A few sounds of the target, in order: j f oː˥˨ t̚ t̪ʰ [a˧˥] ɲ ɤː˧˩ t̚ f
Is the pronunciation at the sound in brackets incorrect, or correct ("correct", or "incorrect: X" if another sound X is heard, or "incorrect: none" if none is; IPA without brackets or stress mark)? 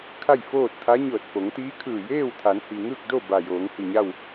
correct